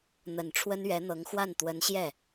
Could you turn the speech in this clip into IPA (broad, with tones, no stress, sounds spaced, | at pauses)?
n̪ ə˨˩ n ʈ͡ʂʰ w ə˥ n ɥ ɛ˧˥ n̪ ɤ˧˥ ŋ x w a˥˩ n t̪ w ə˧˥ n ɕ j ɛ˥˩